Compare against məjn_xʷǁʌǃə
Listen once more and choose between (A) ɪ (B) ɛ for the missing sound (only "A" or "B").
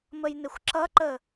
A